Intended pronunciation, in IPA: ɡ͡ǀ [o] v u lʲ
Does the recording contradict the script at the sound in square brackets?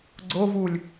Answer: no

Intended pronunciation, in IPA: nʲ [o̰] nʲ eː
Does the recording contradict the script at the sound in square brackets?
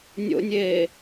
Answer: no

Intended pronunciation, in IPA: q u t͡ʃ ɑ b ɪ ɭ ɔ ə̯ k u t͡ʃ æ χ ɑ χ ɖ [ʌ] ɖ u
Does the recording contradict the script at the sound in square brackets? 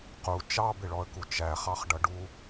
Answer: no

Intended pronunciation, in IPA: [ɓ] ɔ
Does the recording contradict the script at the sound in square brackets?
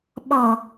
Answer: no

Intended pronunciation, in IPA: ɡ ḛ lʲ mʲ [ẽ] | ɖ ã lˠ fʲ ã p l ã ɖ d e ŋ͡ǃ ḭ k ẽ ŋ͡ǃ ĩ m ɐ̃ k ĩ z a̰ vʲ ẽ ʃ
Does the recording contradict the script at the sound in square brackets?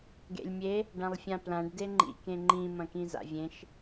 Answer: yes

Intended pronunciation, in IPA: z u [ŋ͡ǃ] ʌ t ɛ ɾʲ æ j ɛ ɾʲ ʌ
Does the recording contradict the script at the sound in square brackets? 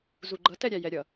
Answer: yes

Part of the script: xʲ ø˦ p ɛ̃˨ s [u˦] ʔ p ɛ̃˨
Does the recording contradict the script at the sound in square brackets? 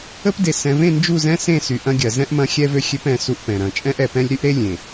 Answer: no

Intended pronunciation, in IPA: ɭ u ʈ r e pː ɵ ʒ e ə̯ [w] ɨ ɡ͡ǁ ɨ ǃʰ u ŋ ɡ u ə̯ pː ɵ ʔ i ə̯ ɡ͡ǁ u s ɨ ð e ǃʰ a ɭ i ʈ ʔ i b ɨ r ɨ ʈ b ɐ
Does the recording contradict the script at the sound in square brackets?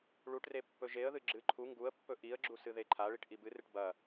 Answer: yes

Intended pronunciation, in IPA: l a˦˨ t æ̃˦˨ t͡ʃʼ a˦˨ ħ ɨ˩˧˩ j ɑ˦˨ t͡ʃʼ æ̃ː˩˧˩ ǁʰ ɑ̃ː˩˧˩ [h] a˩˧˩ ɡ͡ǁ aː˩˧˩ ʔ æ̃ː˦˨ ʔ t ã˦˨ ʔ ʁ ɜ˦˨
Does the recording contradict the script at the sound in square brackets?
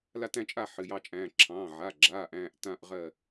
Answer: yes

